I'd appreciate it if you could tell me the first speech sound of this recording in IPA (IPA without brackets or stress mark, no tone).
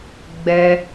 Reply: ɡ͡b